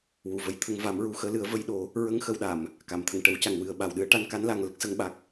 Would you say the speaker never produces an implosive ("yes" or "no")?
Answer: no